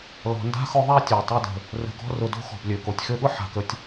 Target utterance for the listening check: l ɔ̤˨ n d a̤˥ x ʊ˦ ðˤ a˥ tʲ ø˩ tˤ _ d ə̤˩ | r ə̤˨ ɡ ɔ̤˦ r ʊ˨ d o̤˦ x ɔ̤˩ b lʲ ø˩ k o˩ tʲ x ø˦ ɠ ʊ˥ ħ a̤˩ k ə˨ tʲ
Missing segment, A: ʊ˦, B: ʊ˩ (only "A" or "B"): A